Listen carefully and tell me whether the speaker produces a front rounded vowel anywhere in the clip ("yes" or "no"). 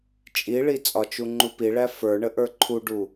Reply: no